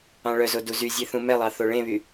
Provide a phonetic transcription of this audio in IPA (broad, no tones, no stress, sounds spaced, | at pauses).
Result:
ɑ̃ ɭ œ z o d u z y zʲ e θ ũ m ɛ lˠ ɑ θ o ɭ ẽ β y